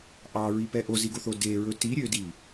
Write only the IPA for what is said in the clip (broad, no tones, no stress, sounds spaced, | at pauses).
ʔ ɑ ɹ i p ɛ ʔ o z i ɡ o θ o d e ɹ ɵ t i ɾʲ ø d i